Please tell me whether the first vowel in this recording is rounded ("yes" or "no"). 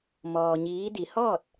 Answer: yes